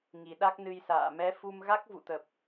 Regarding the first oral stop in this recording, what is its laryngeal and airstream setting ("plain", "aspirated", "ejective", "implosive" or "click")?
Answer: implosive